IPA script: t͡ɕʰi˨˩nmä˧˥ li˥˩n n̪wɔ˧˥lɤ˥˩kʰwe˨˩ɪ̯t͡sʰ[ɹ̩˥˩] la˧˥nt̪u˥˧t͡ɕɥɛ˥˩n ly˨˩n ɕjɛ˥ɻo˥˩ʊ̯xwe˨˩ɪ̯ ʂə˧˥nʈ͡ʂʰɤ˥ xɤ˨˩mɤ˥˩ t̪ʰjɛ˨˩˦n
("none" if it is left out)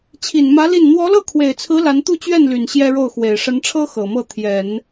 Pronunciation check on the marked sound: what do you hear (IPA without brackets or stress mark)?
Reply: ɹ̩˧˥